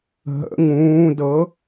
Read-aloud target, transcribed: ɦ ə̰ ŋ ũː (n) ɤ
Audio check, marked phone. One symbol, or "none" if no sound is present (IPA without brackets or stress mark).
d